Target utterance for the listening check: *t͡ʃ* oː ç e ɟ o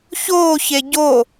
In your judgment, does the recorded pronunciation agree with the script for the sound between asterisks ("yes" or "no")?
no